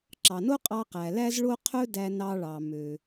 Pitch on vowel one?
low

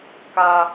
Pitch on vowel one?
high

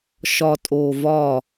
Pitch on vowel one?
low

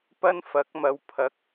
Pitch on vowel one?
high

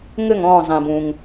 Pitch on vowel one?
falling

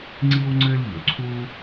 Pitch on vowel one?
high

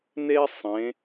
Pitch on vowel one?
high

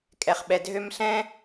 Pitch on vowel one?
low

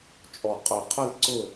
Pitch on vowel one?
low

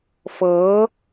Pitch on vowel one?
rising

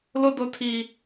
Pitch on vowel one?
high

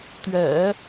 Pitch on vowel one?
low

